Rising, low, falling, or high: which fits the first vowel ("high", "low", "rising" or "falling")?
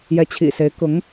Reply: rising